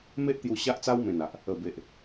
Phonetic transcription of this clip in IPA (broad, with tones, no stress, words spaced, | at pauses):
me˦ʔ t̪ju˧ ɕa˦ʔt͡sa˦w mẽ˨˩na˨ʔ | ə˨˩be˨ʔ